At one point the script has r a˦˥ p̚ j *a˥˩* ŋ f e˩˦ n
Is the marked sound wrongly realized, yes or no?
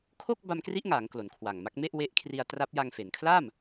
yes